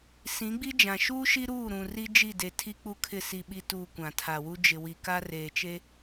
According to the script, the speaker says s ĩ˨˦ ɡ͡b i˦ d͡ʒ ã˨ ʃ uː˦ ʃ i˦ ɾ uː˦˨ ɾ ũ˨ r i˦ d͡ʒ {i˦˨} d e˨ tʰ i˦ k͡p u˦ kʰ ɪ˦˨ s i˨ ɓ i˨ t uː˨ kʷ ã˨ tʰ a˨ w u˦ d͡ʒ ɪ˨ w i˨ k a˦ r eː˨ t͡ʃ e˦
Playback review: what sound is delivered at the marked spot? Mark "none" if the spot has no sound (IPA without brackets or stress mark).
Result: i˦˨